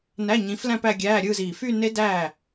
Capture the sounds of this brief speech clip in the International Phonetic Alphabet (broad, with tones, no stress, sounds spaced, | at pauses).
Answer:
n æ˧˥˧ ɲ ĩ˨˦ f l æ̃˥˧ p æ˥˧ ɡʲ æː˧˥˧ ɾʲ ɯː˥˧ z iː˨˩ f y˥˧ n e˦˥ d æː˥˩